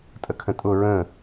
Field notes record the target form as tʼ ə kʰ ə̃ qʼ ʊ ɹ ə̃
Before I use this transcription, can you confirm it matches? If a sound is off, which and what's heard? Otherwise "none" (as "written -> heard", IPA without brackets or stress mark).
qʼ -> tʼ